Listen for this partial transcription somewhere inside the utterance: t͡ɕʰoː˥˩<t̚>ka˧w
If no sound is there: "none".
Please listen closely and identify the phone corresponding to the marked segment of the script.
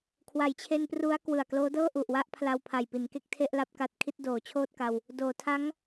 t̚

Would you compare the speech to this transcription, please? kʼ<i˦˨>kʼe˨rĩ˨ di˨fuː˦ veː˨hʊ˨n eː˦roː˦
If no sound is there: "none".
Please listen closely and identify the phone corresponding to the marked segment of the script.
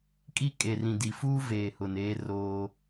i˦˨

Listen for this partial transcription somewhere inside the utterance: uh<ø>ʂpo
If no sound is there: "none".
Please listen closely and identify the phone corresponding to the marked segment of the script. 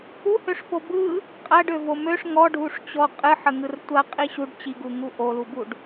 ø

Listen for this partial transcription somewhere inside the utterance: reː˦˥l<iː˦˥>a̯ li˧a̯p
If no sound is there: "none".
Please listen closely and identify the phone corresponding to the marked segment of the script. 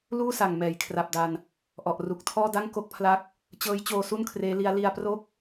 i˦˥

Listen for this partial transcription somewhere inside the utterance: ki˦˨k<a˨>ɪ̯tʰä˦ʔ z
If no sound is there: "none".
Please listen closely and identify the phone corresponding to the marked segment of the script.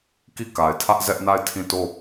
a˨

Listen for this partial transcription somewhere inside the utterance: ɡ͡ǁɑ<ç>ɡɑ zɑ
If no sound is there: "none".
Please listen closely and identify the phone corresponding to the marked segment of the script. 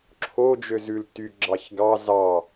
ç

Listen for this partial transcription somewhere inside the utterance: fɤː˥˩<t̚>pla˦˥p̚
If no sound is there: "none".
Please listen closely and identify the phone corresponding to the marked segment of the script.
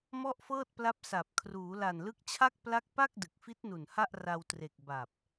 t̚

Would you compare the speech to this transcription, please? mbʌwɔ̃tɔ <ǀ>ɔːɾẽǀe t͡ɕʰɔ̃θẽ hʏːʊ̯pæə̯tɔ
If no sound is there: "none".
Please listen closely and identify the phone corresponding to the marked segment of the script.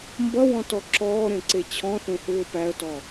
ǁ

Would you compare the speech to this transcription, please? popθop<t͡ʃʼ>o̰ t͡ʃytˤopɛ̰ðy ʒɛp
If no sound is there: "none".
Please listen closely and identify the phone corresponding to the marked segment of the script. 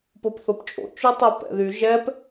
t͡ʃʼ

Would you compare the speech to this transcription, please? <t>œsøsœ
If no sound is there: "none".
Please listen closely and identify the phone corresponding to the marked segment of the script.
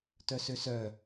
t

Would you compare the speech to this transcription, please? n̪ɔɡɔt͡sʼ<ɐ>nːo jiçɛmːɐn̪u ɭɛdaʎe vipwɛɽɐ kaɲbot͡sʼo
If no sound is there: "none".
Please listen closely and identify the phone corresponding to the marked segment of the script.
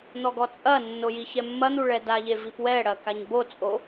ɐ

